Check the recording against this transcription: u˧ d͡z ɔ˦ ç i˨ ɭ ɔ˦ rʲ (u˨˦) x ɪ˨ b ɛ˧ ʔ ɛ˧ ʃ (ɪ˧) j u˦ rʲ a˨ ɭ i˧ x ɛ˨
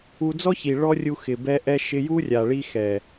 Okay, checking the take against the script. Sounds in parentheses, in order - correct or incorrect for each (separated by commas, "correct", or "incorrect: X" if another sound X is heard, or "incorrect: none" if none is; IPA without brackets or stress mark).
incorrect: u˧, correct